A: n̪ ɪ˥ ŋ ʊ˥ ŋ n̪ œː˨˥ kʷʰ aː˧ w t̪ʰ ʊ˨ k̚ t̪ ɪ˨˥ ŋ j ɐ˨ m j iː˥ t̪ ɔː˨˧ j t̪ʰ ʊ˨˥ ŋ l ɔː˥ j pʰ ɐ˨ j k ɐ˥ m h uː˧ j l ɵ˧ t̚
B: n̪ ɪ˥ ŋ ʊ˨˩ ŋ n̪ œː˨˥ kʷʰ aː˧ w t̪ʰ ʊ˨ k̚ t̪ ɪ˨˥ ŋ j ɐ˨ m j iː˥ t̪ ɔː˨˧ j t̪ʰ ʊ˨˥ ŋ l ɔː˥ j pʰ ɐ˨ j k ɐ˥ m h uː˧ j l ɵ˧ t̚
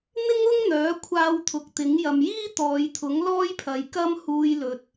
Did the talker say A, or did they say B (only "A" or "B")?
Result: A